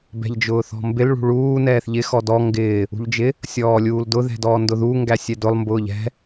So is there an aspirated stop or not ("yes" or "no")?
no